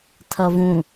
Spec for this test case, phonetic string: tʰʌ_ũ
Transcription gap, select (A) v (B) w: A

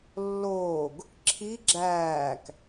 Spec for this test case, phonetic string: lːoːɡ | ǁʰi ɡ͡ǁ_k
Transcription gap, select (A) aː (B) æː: B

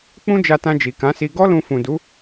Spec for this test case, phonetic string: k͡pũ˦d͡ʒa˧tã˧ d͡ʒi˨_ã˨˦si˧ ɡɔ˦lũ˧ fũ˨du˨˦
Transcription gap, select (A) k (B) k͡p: A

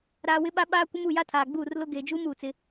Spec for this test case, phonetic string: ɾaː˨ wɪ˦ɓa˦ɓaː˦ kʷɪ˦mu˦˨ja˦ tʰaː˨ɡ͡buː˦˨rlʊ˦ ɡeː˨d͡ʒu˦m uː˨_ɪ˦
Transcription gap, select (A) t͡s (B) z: A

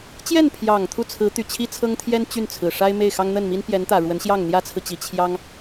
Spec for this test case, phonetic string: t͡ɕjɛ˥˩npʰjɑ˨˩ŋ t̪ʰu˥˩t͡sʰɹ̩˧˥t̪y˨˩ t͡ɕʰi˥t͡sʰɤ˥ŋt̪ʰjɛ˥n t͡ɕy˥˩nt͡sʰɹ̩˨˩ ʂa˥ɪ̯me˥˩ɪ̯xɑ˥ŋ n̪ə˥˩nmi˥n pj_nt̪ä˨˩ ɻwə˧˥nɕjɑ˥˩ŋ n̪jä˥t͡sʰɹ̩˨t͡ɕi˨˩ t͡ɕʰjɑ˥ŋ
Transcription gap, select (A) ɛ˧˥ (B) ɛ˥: A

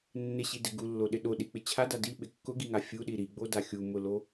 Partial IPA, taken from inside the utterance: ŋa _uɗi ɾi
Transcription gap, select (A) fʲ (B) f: A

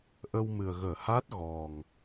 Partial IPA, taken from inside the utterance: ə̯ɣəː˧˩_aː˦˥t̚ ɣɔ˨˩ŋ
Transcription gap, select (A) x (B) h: B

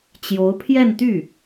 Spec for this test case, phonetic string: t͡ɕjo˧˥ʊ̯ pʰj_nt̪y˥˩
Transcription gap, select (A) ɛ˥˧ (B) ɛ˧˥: A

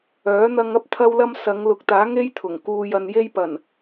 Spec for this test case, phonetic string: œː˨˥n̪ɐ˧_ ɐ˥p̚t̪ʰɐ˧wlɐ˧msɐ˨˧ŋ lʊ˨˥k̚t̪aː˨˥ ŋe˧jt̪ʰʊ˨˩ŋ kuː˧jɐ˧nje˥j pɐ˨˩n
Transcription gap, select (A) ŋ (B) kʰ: A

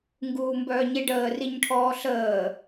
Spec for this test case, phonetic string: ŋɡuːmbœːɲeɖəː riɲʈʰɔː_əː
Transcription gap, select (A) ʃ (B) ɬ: B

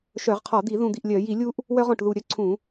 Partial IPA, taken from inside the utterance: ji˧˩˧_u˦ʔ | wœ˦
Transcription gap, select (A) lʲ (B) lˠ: A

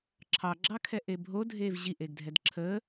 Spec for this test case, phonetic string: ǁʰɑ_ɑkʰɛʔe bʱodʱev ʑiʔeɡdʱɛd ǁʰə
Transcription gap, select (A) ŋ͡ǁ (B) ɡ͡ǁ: B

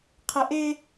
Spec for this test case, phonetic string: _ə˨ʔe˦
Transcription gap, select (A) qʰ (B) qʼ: A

